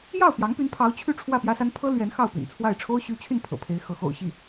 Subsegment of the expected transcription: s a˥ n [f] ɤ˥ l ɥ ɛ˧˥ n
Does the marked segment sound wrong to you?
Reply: yes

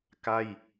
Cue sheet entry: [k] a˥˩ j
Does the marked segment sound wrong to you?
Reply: no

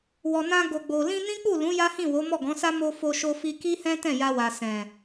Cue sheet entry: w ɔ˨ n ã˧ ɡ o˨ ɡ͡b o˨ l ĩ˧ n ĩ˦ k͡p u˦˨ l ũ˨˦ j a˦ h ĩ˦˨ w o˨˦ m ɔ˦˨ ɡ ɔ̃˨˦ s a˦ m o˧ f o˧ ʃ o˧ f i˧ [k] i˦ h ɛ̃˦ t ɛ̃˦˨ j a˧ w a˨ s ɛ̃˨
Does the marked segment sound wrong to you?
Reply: no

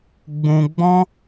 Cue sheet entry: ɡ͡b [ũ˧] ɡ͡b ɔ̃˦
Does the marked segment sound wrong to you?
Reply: no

